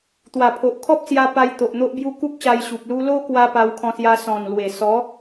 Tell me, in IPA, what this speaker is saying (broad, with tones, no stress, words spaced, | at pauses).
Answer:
t̪wa˨˩pʰo˨ʔkʰɔ˦p̚sja˧ pa˧jt̪o˨ʔ n̪o˦ʔbju˦ ku˦k̚ɕa˧jɕu˨p̚ lu˧lo˦kwa˧ pa˧wkʰɔ̃˧sja˧ sɔ̃˨˩nlwe˨˩ sɔ˨˦